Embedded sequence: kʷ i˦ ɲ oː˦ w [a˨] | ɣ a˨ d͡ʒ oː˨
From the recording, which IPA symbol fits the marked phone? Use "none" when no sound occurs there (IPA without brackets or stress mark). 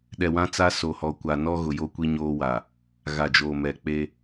a˨